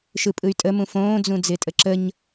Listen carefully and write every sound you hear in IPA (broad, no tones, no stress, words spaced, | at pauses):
ʃɯpʼɯy̯tʼəmũ fõːd͡zũ d͡zɪːtʼəǁəɲ